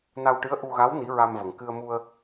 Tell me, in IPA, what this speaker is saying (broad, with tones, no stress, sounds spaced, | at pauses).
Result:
n a˧ w ʈ ɨ˧˥ ə̯ ʔ u˧ ɣ a˧˥ w n i˧˥ ɹ a˧ m v ə˨˩ ŋ k ɨ˧ ə̯ m u˧ ə̯